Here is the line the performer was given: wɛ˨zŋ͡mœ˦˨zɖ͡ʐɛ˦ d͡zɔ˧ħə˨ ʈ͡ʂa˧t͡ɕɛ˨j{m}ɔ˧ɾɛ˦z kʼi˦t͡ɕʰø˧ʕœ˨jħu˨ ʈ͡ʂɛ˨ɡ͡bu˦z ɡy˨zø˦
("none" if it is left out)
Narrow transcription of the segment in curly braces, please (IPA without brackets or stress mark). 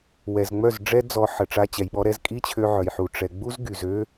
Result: ɓ